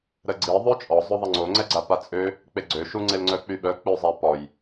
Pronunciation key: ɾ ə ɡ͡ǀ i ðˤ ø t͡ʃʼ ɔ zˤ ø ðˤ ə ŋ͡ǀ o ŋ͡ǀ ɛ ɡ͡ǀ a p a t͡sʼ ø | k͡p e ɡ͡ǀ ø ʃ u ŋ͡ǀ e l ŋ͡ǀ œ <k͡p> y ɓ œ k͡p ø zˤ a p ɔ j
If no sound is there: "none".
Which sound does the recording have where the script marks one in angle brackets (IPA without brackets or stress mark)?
k͡p